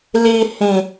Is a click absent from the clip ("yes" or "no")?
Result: yes